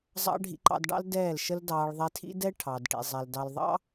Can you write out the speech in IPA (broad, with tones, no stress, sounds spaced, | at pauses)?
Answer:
zˤ ɑ̰˧ ɖʱ ḭ˧ ǃ ɑ̰˧ d ɖ ɑ̰˦ l d ɛː˦˨ l ʃ ə˦ l d ɑː˧ ɭ ðˤ ɛ˧ tʰ ḭ˦ d ɛ˦ ʈʰ ɑ˨ d ʈ ḭ˨ zˤ ɛ˨ l d ɑ˨ l ðˤ ɑ̰˧